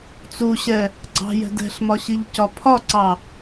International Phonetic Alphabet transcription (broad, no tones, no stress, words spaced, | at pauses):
t͡suɕɛ | ɡ͡ǀɑ̤jɛ̤d ɛ̤ɬmɒɕiʎcɒ pʰɒǀɑ